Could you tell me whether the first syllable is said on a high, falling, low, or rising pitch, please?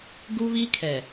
high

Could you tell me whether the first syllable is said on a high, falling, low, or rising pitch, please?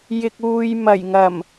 low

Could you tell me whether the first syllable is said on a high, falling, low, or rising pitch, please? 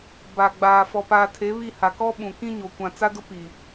low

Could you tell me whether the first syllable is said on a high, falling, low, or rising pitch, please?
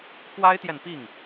high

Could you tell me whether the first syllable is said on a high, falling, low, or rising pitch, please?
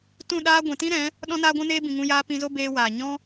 falling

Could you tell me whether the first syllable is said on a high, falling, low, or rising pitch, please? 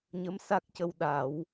rising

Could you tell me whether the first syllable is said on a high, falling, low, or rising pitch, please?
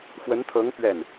rising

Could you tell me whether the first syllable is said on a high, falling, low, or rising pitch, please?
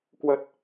low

